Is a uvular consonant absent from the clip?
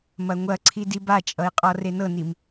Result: no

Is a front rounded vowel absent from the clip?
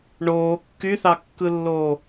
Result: no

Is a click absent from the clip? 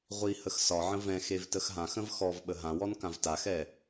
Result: yes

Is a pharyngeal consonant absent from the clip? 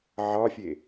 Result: no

